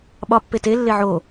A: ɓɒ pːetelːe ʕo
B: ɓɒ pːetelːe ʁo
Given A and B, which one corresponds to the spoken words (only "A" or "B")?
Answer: A